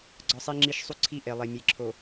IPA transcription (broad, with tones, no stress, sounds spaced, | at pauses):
ɡ͡ǀ ɒ˦ sˤ i˦ ŋ͡ǁ i˦ ʃ sˤ u˦ ǀʰ i˦˨ ʔ e˨ lˠ e˨ mʲ e˨ ǁʰ o˨